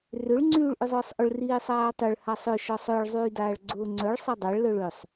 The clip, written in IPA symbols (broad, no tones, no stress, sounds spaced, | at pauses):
r ʏ ɭ ŋ͡ǀ yː ɭ ʔ ʏ zˤ ʊː sˤ ʔ ʊ ɭ r iː sˤ aː tˤ ʏ ɭ h a sˤ ʏ ʃ ɔ sˤ œ ɭ zˤ yː d aː ɭ ɡ͡ǀ ʊː ŋ͡ǀ œ ɭ sˤ œ dˤ a ɭ l œ ɭ ø sˤ